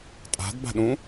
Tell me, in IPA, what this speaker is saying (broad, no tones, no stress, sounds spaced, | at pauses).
tʼ a̤ d b a̤ ɗ ũ